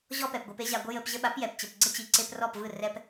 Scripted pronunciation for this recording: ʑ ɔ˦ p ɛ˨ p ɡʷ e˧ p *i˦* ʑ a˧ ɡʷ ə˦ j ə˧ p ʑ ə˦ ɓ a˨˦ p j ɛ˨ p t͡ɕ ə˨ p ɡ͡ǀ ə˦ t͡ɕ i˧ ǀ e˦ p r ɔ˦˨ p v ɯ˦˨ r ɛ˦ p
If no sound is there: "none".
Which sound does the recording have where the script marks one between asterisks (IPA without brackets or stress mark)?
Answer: e˦